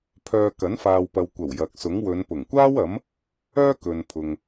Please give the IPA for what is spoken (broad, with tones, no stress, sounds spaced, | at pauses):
pʰ œː˧ k ɐ˨˥ n f aː˨ w p ɐ˨ w kʷ ɐ˨˩ w j ɐ˨ k̚ s ʊ˨˥ ŋ w ɵ˨˧ n p ʊ˨˩ ŋ kʷ aː˥ w ɐ˨˥ m | œː˥ k ɵ˨ n pʰ ʊ˨ ŋ